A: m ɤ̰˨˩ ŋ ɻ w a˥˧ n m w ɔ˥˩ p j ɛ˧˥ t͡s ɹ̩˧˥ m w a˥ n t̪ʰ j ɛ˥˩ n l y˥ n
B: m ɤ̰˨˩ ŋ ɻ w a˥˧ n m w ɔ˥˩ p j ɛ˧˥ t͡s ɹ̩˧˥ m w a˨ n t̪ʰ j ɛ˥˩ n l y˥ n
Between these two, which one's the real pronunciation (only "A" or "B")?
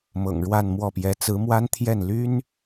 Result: A